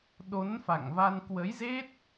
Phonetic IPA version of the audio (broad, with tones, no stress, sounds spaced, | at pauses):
ɗ o˨˦ n f a̰˧˨ ŋ v a˧ n k w ə˨˦ j z e˦˥ t̚